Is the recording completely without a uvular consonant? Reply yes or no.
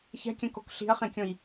no